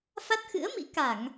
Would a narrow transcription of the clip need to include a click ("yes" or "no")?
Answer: no